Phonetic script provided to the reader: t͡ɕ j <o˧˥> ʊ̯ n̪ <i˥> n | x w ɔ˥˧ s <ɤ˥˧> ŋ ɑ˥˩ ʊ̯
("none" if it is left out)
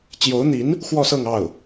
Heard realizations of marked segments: o˧˥, i˧˥, ɤ˥˧

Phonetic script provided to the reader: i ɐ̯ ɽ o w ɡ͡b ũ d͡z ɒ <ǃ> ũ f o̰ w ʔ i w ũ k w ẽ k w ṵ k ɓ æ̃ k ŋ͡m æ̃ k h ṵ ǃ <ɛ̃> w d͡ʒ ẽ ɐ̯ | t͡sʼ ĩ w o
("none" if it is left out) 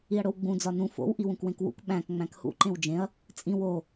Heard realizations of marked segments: n, ẽ

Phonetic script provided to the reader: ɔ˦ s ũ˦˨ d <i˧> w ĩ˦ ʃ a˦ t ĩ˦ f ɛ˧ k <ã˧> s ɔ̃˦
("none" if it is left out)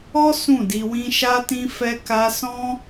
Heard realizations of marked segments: i˧, a˧

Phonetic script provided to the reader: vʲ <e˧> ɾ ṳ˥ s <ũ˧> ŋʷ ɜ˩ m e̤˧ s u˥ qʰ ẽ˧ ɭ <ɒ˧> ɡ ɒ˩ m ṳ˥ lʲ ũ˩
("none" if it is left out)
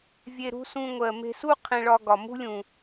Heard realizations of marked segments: e˧, ũ˧, ɒ˧

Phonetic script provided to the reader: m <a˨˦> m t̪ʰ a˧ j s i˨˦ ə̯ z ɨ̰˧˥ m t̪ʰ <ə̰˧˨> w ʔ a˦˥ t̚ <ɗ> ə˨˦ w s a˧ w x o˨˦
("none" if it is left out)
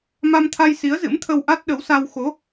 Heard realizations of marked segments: a˧, ə˧, ɗ

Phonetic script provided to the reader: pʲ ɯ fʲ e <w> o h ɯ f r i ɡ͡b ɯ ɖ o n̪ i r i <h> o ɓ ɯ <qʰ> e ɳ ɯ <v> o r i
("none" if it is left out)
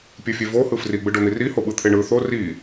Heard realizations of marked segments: v, h, t̪ʰ, θ

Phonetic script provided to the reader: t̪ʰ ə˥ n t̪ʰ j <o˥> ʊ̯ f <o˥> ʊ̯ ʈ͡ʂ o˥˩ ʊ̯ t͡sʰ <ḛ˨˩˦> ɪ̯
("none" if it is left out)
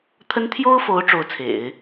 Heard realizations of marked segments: o˥, o˧˥, ḛ˨˩˦

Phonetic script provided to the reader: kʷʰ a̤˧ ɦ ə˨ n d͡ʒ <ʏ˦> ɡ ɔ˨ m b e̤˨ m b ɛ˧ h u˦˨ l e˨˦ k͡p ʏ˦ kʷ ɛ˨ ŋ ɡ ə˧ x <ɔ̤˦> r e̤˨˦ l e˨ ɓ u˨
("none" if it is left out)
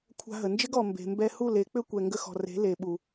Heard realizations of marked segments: ɪ˦, ɔ̤˨

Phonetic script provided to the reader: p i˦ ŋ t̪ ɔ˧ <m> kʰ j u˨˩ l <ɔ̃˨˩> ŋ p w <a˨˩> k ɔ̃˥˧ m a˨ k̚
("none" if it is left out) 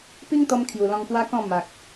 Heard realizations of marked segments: m, ɔ̃˧, a˦

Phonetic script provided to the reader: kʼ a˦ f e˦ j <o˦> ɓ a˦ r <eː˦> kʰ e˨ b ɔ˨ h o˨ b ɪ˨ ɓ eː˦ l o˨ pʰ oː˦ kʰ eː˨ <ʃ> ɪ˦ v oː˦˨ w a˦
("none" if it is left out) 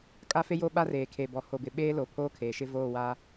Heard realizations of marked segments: o˦, eː˨, ʃ

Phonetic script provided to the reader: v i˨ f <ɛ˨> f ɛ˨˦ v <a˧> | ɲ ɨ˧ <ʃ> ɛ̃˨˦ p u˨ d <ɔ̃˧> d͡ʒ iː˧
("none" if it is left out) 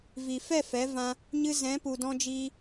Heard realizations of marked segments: ɛ˦˨, ã˧, z, ɔ̃˧

